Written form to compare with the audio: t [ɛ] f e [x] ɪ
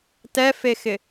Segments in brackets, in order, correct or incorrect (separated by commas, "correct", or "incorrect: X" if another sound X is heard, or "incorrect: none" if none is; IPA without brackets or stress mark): correct, correct